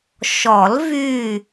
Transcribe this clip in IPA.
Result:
ʃ ɔ˨˩˦ l v y˧˩

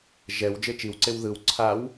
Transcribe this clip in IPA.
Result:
ʒ ɛ w d͡ʒ e t͡ʃ i w ǀ e w ð ɯ w ǀʰ a w

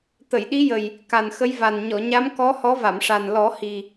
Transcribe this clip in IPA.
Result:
t̪ ə˨˩˨ j ɗ i˧˥ j ə˨˩ j | k a˨˩ n x ə˧˥ j v a˨˩ n ɲ ɔ˨˩˨ ɲ a˧˥ m k ɔ˧˥ h ɔ˧˥ v a˨˩˨ m ʂ a˨˩ n l ɔ˨˩˦ h i˨˩

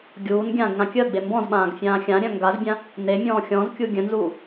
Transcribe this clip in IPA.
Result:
ɡʲ uː n ɡʲ ãː ɡ ŋ ã kʲ əː ɡ͡b e m b ɔ̃ z ɓ ãː ɡ fʲ ãː xʲ ã ɾʲ œ̃ ŋ ɡ a z bʲ ã | n e mʲ ɔ̃ː xʲ ɔ̃ z kʲ u ɡʲ œ̃ n z uː

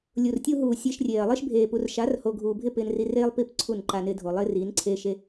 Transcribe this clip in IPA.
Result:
lʲ u˨ r tʲ u˦ ɦ uː˨ sʲ e˧ ʃ rʲ eː˨ ɐ̯ lˠ ɪː˦ ʃ bʱ eː˨ p u˨ r ʃ a˨˦ r h o˨ ɡʱ uː˨ bʱ ɪ˦˨ p ɪː˧ n r i˧ r eː˦ lˠ p i˦˨ p ǀʰ u˦˨ n ǃ a˧ n ɪː˧ dʱ o˨ lˠ ɪː˦ r iː˨˦ n ǀʰ eː˧ ʃ e˧

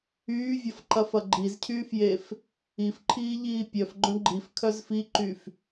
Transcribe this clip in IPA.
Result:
yː vʲ ɐ f ǃ ɐ f ɐ ɡ͡ǃ i z cʰ yː f j e f | i f ǃʰ iː ʎ iː pʲ œ f ɡ͡ǃ œ̃ ɡ͡ǃ i f kʰ œ z f i ǃ y f

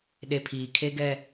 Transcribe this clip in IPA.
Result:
ɗ e˨ pʰ iː˨ kʰ e˦ ɡ ɛ˦

